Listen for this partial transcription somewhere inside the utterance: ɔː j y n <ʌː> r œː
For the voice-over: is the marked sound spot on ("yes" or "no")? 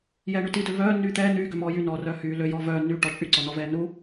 no